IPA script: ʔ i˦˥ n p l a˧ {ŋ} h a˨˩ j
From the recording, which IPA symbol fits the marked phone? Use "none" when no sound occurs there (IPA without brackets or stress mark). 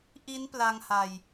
ŋ